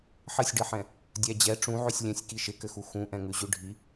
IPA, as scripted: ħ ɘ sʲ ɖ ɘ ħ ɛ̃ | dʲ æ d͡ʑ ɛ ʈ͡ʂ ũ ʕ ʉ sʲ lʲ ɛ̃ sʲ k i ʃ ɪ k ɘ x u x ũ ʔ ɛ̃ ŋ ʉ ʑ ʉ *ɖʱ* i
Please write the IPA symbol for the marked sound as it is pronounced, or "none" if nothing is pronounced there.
ɖʱ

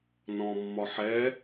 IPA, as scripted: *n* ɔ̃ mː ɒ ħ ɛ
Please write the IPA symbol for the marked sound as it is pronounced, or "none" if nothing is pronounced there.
n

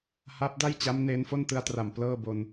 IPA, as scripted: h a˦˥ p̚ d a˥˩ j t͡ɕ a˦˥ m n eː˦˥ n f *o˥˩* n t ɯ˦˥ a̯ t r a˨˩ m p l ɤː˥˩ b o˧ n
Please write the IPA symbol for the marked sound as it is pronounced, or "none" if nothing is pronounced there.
o˥˩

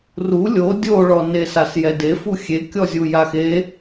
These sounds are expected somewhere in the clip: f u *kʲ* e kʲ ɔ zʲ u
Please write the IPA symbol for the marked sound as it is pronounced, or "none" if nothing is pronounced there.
xʲ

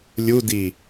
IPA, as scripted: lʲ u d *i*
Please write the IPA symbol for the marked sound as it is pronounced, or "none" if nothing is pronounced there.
i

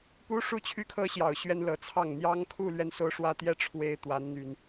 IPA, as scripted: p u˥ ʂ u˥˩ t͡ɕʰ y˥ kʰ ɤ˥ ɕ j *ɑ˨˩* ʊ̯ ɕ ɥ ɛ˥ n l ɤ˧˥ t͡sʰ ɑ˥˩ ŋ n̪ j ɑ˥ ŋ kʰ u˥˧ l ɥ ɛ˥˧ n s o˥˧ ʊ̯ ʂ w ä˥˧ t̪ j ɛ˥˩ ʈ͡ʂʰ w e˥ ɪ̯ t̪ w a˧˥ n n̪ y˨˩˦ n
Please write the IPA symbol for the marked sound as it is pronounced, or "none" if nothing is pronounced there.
ɑ˨˩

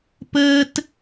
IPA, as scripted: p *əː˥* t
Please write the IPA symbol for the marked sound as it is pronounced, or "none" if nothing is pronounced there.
əː˥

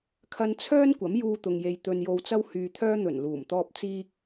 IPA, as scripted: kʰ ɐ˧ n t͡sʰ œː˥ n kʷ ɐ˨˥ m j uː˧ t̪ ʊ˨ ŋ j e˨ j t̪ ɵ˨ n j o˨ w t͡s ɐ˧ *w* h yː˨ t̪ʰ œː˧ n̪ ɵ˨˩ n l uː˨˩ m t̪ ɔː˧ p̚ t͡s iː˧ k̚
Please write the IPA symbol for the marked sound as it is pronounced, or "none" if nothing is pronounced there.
w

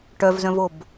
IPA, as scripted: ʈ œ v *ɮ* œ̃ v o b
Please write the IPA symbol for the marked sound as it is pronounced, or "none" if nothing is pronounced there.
z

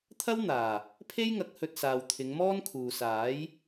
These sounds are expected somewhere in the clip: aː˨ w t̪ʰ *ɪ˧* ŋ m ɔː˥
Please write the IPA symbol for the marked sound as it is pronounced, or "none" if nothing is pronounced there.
ɪ˨˧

